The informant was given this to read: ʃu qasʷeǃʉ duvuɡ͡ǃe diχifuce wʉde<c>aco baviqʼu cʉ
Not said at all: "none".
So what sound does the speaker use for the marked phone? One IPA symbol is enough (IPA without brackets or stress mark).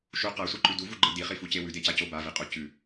c